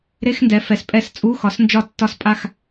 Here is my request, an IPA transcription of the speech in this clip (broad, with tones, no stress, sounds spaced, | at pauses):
ɾ e˧˥˧ x n d ɛ˩˧ f ɛ˩ s pʼ ɛ˦˨ s t͡sʼ u˧˥˧ x ɒ˨˥ s n d͡ʒ ɒ˦˨ tː ɒ˦˨ s pʼ a˦˨ x